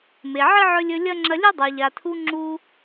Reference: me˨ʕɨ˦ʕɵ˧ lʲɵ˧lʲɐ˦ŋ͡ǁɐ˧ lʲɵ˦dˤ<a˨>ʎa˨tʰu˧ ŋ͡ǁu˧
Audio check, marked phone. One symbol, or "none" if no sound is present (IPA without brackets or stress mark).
a˨